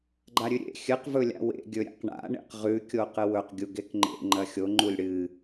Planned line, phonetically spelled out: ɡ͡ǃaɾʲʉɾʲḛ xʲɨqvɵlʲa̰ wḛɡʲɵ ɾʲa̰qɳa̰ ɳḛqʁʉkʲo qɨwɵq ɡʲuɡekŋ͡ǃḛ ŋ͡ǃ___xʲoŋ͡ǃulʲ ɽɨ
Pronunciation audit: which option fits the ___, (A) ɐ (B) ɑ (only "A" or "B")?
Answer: A